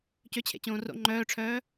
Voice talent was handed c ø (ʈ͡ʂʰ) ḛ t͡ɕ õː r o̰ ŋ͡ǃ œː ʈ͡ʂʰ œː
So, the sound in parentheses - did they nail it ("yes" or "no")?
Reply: no